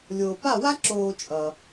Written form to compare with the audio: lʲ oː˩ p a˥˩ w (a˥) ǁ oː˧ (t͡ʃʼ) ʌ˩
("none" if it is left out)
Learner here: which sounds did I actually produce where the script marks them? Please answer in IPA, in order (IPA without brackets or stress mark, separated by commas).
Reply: a˥, t͡ʃʼ